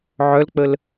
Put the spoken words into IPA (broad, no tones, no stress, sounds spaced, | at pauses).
ʕ œ l k͡p ə l